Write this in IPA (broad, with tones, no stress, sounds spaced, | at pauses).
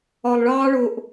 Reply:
ɒ˨ lˠ ɭ ɑː˦ ɭ ʊ˧ ʔ